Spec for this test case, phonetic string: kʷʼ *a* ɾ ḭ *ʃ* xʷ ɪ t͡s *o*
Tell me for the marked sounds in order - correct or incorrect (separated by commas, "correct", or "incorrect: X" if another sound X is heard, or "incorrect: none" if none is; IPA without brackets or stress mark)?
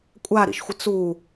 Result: correct, correct, incorrect: u